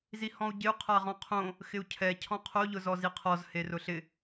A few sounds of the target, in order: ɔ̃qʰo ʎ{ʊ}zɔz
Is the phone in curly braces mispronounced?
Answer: no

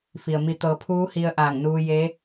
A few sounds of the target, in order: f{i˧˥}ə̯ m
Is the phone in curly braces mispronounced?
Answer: yes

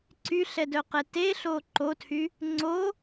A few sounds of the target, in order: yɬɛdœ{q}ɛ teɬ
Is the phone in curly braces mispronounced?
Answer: no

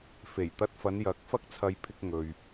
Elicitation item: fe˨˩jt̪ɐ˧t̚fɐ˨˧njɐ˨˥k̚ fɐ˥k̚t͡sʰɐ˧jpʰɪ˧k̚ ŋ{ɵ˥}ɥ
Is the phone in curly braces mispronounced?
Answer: yes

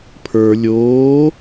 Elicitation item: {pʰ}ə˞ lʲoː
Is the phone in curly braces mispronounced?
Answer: no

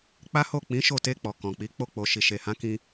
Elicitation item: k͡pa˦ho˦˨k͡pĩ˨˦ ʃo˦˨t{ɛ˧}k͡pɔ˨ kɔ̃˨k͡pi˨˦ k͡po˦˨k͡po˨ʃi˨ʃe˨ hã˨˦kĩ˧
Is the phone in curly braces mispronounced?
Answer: yes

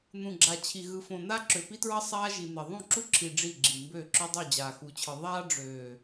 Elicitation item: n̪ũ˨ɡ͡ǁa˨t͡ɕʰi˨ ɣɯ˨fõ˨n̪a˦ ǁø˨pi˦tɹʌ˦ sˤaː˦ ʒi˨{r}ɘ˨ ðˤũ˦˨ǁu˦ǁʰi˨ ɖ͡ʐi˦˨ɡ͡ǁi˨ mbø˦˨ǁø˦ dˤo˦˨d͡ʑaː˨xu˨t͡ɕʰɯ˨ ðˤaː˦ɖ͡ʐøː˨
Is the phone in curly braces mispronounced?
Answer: yes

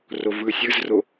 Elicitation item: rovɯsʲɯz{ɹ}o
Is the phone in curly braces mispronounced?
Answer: yes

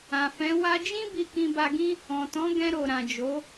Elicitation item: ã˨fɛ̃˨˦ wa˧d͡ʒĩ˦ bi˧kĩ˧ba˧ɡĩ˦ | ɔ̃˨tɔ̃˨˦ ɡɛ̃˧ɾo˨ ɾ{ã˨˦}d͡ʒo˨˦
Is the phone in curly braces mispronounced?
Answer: yes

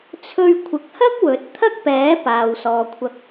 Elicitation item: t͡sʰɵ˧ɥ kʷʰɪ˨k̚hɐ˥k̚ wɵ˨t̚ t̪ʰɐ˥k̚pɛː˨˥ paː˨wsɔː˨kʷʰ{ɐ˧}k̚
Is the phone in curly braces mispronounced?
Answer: no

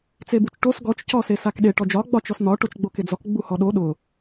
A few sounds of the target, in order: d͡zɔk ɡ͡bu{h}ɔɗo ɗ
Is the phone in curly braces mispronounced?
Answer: no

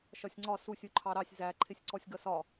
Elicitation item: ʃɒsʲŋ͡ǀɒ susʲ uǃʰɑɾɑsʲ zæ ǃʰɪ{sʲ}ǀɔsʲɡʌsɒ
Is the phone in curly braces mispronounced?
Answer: no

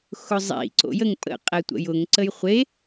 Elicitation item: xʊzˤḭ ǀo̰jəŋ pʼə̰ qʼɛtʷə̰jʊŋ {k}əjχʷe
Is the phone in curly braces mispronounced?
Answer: yes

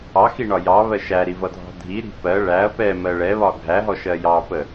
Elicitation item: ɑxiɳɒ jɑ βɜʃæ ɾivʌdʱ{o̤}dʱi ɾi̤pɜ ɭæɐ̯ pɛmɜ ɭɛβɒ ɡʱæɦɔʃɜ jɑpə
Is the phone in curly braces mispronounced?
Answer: yes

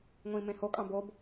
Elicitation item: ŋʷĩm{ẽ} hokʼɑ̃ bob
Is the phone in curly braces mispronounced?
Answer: no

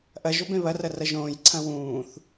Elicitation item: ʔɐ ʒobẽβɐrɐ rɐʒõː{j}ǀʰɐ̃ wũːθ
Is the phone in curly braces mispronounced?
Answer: no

